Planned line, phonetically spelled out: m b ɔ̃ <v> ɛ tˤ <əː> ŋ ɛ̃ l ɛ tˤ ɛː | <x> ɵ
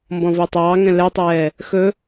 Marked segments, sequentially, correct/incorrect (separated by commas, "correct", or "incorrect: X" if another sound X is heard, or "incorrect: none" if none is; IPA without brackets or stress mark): correct, incorrect: ɑː, correct